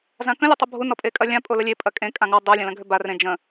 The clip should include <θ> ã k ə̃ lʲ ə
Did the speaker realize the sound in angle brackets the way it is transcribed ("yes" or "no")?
no